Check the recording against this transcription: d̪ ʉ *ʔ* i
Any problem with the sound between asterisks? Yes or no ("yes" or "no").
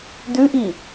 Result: no